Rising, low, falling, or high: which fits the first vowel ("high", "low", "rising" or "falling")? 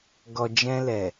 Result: low